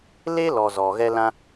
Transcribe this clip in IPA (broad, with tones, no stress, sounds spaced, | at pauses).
l eː˦ l ɔ˨ z ɔ˨ ɣ ɛ˧ l ã˧